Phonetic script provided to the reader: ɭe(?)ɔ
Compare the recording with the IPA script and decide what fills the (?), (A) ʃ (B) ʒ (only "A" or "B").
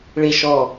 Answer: A